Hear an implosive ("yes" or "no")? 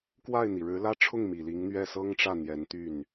no